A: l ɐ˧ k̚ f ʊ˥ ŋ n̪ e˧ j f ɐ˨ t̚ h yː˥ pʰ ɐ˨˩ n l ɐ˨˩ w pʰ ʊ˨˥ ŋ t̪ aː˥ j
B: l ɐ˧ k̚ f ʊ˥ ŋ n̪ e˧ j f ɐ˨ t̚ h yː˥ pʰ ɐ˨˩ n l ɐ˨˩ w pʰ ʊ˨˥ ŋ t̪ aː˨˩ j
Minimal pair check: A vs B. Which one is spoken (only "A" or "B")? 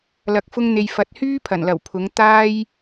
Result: A